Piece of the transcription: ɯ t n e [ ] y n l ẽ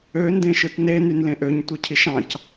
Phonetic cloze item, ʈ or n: n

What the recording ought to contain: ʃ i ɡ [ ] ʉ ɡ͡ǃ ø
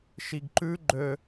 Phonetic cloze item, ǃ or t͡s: ǃ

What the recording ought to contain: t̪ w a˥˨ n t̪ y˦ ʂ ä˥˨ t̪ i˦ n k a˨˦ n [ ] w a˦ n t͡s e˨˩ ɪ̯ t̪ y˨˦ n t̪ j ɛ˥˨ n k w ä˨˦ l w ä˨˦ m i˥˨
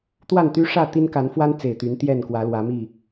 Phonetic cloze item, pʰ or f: f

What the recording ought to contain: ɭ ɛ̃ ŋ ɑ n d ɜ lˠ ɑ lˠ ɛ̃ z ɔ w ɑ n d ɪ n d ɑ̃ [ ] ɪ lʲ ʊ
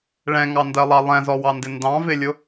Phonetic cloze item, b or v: v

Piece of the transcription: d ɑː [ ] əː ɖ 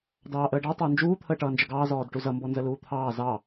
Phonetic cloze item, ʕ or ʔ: ʔ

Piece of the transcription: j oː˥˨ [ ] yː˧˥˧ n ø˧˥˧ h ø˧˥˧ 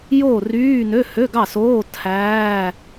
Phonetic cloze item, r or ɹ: r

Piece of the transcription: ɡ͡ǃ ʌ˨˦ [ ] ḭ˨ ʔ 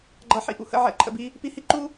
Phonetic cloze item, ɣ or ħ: ħ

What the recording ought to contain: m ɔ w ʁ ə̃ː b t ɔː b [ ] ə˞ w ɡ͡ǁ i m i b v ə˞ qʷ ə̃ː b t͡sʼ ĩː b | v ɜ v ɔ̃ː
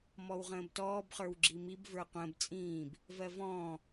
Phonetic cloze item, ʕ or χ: χ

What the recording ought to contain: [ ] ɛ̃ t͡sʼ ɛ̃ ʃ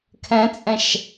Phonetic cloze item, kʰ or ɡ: kʰ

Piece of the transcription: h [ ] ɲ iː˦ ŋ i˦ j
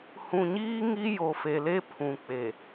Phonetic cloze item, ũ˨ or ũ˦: ũ˨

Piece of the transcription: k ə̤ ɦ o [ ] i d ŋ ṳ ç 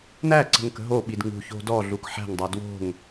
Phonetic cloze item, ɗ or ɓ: ɓ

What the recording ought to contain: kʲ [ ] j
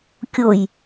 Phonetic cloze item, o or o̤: o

